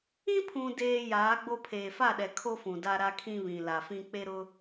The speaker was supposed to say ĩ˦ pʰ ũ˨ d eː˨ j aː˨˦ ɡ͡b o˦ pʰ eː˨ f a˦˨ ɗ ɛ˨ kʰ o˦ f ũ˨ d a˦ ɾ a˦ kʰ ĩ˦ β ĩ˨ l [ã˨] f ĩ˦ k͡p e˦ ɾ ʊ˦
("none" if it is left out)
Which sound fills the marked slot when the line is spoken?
a˨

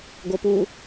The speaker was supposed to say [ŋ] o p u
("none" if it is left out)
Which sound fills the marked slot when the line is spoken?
ɡ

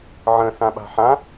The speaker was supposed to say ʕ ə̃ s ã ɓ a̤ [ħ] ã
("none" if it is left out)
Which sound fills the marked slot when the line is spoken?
ħ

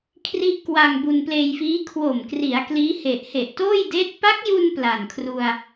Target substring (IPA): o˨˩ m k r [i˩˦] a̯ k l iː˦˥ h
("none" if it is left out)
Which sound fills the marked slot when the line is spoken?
i˩˦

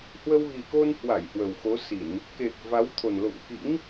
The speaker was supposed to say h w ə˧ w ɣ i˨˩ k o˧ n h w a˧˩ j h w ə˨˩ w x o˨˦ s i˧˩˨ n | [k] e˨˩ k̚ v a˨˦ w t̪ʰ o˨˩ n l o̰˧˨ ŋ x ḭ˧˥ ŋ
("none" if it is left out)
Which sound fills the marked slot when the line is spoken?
k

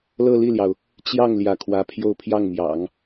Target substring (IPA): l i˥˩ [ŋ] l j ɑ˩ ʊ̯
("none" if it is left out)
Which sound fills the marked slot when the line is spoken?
none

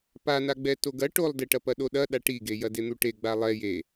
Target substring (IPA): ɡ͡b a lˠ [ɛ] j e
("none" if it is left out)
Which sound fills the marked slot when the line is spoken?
ɛ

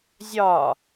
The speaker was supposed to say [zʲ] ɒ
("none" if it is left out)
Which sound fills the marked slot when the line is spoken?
zʲ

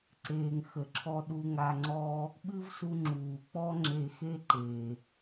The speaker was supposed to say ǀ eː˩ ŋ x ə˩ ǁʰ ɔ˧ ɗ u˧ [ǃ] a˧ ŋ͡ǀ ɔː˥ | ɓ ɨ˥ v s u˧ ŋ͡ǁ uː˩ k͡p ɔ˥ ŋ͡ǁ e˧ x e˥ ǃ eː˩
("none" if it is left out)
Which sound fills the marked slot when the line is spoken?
ŋ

